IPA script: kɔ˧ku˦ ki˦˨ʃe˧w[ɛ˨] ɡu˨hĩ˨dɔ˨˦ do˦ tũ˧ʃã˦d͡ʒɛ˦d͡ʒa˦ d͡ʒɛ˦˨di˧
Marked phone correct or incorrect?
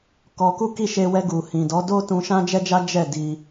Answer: incorrect